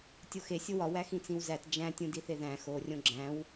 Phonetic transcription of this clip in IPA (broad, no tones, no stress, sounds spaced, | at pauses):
tʲ o x e sʲ o w ɒ w æ x ĩ t͡s ĩ w z æ t d͡ʒ æ̃ tʲ ũ d i θ e ð æ̃ x o rʲ õ ɡ͡ǁ æ̃ w